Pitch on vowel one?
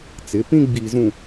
rising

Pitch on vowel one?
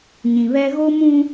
low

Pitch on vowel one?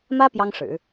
high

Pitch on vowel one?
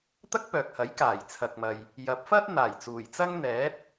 high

